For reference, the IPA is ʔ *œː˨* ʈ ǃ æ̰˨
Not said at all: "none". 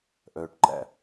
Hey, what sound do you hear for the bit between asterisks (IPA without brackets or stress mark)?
œː˨